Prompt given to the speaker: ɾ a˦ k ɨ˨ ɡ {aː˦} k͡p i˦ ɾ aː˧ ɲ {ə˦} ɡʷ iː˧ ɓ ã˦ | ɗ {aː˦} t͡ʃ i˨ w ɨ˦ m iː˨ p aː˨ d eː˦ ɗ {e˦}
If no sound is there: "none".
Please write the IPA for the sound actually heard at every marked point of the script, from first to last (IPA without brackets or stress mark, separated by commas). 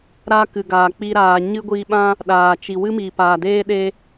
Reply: aː˨, ɨ˦, aː˨, e˦